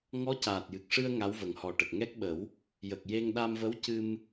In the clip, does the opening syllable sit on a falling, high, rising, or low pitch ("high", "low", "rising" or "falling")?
rising